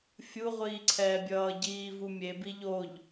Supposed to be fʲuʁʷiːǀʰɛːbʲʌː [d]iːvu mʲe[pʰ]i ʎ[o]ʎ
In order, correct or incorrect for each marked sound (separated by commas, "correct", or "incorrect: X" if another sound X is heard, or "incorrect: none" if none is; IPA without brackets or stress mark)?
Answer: incorrect: ɟ, incorrect: b, correct